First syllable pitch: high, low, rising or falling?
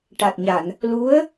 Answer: low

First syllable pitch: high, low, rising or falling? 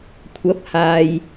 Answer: rising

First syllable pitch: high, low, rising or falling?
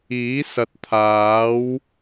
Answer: rising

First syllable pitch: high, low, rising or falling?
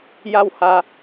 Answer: falling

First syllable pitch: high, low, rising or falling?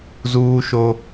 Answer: high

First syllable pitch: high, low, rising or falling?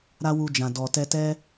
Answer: high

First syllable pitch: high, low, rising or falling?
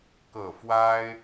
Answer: low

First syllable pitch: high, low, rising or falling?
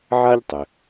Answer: high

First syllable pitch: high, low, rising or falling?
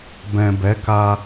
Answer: low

